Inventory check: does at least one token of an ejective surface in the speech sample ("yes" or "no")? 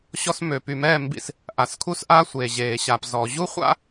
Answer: no